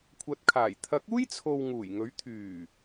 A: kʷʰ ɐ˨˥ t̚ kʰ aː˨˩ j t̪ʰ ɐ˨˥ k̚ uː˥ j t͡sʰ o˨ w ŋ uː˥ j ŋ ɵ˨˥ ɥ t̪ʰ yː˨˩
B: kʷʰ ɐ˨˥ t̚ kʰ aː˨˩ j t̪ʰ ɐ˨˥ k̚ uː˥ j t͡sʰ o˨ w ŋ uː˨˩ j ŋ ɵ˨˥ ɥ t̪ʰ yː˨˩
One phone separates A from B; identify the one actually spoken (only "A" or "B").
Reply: B